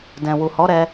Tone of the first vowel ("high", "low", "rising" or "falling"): low